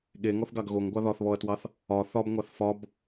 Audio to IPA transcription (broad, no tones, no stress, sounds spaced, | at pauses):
ɠ e ŋ ɔ θ ɡ ɑ ɡ ɣ o ŋ ɡʷ ɑ ð ɒ θ β ɔ ɐ̯ t w ɑ θ | ɒ θ ɒ b ŋʷ ɑ θ f ɒ b